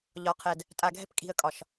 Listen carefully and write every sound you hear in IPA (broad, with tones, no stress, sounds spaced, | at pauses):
ʎ ɒ˨ qʰ ɛ˨ d | tʼ a˨ ɡʱ ɛ̤˦ p kʼ i̤˨ ə̯ kʼ ɒ˨ ʃ